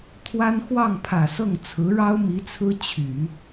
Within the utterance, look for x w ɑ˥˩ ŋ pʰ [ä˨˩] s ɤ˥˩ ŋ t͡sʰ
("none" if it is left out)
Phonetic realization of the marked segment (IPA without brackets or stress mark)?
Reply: ä˨˩